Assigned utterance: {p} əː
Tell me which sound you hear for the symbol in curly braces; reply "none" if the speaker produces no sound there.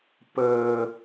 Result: p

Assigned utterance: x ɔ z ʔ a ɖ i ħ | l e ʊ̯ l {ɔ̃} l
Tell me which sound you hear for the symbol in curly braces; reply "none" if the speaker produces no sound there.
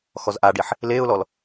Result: ɔ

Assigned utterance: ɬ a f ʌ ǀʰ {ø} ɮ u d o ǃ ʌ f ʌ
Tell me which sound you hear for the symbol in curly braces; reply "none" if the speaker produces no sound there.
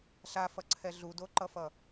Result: ɛ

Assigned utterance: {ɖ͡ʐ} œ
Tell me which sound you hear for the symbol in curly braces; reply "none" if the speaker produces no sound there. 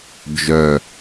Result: d͡ʒ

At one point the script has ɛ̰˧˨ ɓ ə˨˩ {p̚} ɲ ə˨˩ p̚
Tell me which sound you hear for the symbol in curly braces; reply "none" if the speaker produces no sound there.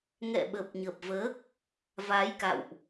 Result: p̚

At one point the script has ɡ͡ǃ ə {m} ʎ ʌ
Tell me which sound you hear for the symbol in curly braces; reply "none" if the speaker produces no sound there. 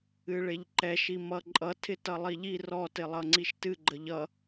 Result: none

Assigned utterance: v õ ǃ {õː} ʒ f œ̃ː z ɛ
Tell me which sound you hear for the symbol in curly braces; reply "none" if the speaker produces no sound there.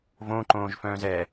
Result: õː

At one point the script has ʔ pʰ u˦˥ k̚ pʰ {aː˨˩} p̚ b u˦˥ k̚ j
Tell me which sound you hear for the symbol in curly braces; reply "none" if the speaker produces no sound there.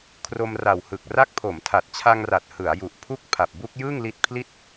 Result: a˨˩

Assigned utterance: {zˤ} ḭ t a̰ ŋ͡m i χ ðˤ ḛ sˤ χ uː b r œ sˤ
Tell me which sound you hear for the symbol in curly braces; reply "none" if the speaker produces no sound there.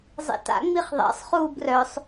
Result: zˤ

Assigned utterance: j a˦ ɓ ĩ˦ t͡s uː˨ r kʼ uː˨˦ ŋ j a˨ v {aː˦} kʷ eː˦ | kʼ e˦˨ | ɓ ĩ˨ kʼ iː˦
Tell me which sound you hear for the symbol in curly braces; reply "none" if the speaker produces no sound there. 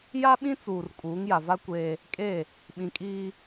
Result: a˦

